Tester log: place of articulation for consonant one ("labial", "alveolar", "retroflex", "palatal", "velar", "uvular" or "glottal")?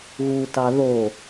velar